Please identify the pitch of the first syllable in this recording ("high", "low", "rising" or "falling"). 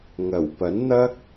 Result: low